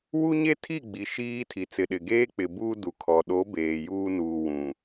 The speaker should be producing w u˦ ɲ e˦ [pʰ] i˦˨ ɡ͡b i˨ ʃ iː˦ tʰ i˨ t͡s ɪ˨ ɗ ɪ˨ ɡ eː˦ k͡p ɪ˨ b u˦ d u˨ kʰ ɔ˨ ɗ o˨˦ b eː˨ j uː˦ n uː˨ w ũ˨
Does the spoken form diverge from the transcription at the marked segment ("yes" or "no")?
yes